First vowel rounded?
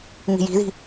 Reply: no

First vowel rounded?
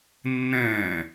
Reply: no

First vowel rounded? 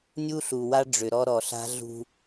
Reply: yes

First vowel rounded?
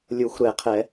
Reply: yes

